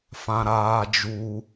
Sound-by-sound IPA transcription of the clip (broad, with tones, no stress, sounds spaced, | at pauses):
f ã˨ ɾ aː˧ d͡ʒ u˧